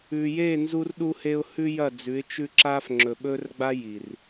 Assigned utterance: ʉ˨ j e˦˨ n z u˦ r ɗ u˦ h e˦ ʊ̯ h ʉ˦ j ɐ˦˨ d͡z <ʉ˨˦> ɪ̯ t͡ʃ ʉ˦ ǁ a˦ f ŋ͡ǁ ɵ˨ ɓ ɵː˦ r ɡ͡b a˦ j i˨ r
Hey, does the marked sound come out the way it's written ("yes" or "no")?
yes